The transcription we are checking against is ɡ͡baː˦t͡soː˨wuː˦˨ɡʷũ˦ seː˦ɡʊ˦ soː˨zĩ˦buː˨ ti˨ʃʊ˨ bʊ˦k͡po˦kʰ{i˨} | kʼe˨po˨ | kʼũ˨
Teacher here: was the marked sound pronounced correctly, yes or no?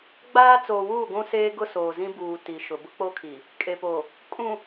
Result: yes